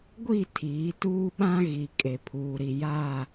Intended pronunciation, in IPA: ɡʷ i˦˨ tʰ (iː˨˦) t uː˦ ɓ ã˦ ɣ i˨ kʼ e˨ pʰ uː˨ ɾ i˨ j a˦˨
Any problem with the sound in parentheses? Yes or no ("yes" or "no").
no